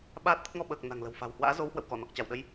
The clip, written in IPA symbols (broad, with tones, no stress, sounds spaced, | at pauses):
ɓ aː˦˥ t̚ t̪ ə˦˥ t̚ ŋ ɔ˧ ɓ əː˨˩ k̚ n a̤˨˩ ŋ l ə̤˨˩ w f a̤˨˩ w h w a̰ː˧˥ z o˨˦ w h w ə̰˧˨ w k ɔ˧˩ n ɔ˨˩ k̚ t͡ɕ a˧˩ w ɗ ə˧ j